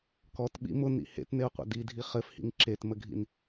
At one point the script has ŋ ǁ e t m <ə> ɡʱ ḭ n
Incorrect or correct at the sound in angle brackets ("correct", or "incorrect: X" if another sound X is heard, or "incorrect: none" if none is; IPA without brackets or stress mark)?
correct